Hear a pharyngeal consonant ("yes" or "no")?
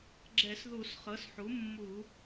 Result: yes